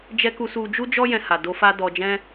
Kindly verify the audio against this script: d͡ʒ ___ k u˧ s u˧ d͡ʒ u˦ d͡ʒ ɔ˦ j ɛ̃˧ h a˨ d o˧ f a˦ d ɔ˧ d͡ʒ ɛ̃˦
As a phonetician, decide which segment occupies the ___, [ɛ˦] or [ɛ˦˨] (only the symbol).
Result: ɛ˦